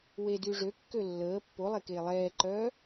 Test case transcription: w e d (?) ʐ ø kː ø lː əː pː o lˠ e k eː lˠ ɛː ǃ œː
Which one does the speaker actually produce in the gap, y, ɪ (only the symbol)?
y